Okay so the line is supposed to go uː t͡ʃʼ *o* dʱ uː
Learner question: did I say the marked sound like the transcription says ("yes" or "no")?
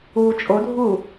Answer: yes